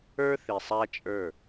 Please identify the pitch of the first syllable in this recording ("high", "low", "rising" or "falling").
high